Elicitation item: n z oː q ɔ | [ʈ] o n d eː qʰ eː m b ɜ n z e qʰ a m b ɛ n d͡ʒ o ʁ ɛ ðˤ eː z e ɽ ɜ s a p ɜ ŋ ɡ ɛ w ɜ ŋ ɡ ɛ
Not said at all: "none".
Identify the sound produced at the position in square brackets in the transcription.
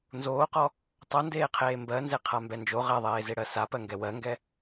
tˤ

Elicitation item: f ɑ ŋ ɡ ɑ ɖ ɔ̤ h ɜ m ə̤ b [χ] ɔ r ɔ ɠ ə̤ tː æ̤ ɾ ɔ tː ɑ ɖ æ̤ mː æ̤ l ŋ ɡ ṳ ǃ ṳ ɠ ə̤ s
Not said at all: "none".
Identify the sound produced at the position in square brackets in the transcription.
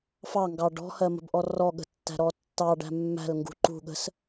ʔ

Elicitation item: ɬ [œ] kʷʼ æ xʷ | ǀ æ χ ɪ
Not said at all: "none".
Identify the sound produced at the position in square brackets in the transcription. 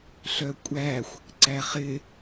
œ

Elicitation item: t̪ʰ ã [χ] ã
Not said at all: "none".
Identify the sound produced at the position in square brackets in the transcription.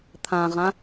ʁ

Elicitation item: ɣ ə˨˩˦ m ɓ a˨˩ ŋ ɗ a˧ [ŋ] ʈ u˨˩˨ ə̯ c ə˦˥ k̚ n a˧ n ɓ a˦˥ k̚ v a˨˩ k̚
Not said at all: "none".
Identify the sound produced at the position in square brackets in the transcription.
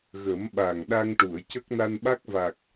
ŋ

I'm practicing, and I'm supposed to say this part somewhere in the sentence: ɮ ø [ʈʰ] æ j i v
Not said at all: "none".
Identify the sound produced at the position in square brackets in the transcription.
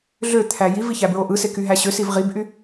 t̪ʰ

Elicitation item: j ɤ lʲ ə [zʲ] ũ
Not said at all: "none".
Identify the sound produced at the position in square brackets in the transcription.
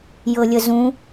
z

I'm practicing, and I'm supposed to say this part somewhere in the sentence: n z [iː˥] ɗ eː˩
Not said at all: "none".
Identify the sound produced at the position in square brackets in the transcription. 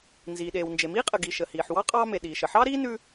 iː˩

